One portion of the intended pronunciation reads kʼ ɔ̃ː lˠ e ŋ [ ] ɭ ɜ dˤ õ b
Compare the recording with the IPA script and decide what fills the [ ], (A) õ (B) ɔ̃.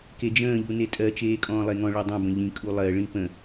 B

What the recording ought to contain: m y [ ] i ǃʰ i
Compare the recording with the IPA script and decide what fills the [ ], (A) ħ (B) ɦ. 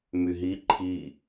B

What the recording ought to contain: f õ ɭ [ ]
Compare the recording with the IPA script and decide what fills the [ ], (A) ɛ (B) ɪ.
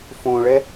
A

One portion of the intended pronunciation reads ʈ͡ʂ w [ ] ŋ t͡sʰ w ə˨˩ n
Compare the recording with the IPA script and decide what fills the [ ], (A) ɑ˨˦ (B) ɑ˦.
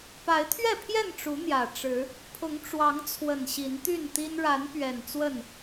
A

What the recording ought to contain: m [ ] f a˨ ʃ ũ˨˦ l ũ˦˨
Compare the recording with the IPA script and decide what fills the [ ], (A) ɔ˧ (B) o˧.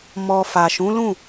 A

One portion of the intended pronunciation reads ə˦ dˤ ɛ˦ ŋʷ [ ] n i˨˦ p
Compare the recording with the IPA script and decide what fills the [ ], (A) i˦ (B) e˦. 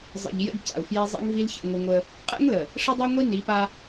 A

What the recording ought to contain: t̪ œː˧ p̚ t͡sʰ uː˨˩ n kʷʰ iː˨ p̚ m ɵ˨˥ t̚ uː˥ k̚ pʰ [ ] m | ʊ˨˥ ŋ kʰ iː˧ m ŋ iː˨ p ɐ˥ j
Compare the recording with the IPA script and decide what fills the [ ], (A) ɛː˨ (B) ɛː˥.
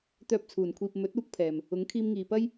A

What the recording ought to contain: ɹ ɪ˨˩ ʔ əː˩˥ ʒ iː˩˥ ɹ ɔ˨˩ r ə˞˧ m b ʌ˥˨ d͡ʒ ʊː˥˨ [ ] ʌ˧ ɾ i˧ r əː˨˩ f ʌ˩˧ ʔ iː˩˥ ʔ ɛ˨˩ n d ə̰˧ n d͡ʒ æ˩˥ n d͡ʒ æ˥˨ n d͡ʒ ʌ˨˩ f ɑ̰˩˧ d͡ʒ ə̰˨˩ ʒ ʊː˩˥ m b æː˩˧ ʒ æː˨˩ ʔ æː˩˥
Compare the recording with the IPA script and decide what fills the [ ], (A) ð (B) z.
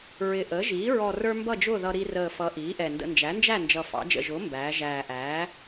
A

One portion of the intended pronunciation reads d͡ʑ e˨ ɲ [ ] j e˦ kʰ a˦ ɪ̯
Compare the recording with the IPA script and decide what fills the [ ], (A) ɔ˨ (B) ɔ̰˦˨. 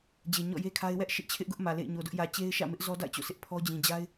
B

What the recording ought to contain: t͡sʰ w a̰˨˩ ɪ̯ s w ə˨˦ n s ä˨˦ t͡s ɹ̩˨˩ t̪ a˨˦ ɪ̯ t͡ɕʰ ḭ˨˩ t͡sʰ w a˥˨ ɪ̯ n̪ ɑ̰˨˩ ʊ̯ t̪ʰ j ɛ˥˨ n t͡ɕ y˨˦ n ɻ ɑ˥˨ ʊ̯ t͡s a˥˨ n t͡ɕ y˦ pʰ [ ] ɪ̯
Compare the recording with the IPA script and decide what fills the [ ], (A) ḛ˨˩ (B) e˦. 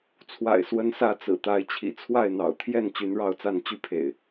A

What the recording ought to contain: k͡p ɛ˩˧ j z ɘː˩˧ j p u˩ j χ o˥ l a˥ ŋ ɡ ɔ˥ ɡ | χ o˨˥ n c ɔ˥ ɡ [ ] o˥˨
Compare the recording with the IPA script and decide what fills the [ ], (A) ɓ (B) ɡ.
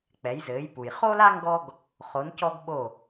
A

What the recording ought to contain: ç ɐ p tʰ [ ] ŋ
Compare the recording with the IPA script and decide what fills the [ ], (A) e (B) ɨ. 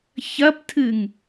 B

